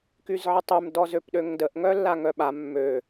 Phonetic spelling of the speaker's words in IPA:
k y z ʕ ə tˤ y m d ɔ z ø p ɗ ø ŋ d ə ʔ ŋ œ lː a ŋ œ ɓ a mː ø

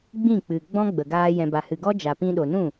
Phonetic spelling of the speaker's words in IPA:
ɡ͡b ĩ˦˨ k͡p ɨ˨ ɡ͡b ɔ̃˦ ɡ͡b ə˨ ɡ aː˧ j ɛ̃˨ b a˨ h ɨ˨ ɡ ɔ˦ d͡ʒ a˨ p ĩ˧ ɗ o˨ n ũ˦˨

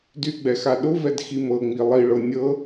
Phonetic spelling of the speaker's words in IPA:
d y ɡ͡b ɛ x a ɗ ʊ v ɛ d x i m ɤ ŋ͡m i lˠ i ɭ ɤ nʲ ɤ

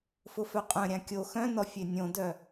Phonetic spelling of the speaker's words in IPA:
f ʊ f œ qʼ œ̃ ɾʲ ã kʲ o x œ̃ n ɔ fʲ e nʲ õ d œ

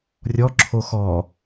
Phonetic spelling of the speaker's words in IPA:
rʲ ɔ ǁʰ o x ɔ

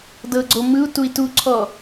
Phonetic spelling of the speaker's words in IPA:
d ɤ ɡ͡ǀ o m ɯ u̯ t u i̯ t u ǀʰ ɔ

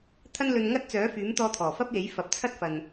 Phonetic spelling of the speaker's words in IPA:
t̪ʰ ɐ˥ n l ɵ˧ n ŋ ɐ˥ t̚ t͡s œː˨˥ f yː˨˥ m t̪ ɔː˧ t̪ʰ ɔː˨˩ f ɐ˥ p̚ j e˨˥ j f ɐ˨˥ p̚ t͡sʰ ɐ˥ t̚ f ɐ˨ n

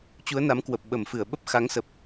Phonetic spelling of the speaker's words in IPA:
t͡ɕ u˨˦ ə̯ n a˨˦ m k w ə˨˩ p̚ ɓ ə˧˩ m f ɨ˧˩ ə̯ ɓ ə˦˥ p̚ x a˨˦ ŋ s ə˨˩ p̚

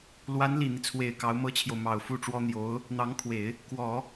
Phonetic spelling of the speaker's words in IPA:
l w a˧˥ n l i˨˩ n̪ i˦ t͡sʰ w e˨˩ ɪ̯ k ɑ˧˥ ʊ̯ m ɤ˥ t͡ɕʰ j o˨ ʊ̯ m ɑ˨˩ ʊ̯ f u˥˩ ʈ͡ʂ w ɔ˥ n̪ j o˧˥ ʊ̯ | n̪ ɑ˧˥ ŋ kʰ w e˨˩˦ ɪ̯ | k w ɔ˨˩˦

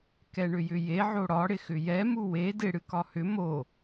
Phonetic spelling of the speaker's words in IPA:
k ɛ ɳ ʏ j ʏ j e ʕ o ɽ ɒ ɽ ɪ x ʏ j ɛ m u w e d ɪ ɽ ɨ k ɒ h ʏ m o

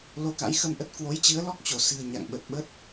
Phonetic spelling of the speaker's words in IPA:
l o˧ k a̰˧˥ j x ə˧ m ʔ ə˦˥ t̚ k w o˨˦ j t͡ɕ ɨ˨˦ ə̯ l ɔ˦˥ k̚ t͡ɕ o˧˩ s ɨ̤˨˩ ə̯ ɲ a̰˧˨ ŋ ɓ ə˨˩ t̚ ɓ ə˦˥ t̚

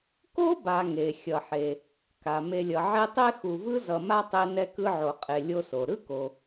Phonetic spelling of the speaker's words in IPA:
k o˥ b a˨ ŋ e˩ xʲ ʌ˩ ħ e˩ | k a˩ m e˨ lʲ ʌ˩ ʕ e˦ tˤ e˥ x u˨ v ɯ˥ z ʌ˨ m a˥ tˤ e˦ n ɛ˦ k ɯ˦ ʕ o˨ qʼ e˨ lʲ o˦ s o˩ ɾ ɯ˥ k o˩

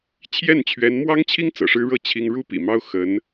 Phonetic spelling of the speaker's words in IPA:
t͡ɕʰ j ɛ˥˩ n t͡ɕʰ ɥ ɛ˧˥ n m w ɑ˥ ŋ t͡ɕʰ i˥ ŋ t͡s ɤ̰˨˩ ʂ ɻ̩˥ ɻ ɤ˥˩ t͡ɕʰ i˥ ŋ ɻ u˥ p ḭ˨˩ m ɑ˥ ʊ̯ x ə˧˥ n

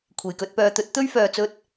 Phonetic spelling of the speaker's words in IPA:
kʷʰ e˨˩ j k ɵ˧ t̚ p œː˨˧ t̪ ɵ˨˥ t̚ t̪ ɵ˥ ɥ f œː˨ t͡s ɵ˧ t̚

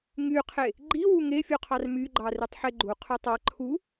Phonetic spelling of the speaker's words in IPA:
ŋ y qʰ e | ɡ͡ǃ i w u ŋ e fʲ u qʰ ɑ r m y ɡ͡ǃ ɑ r y tˤ ħ e ɡ͡ǃ u qʰ y tˤ ɑ ǃʰ u

